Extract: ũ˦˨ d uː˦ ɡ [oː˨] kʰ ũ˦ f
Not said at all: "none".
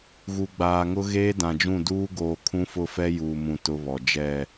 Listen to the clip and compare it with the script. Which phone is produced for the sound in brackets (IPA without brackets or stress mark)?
oː˨